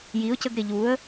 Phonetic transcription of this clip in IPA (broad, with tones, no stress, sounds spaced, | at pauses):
j i˩˥ ʊ̯ c ə˧ ɡ ɾ ɪ˩ ʎ u˩˥ ə̯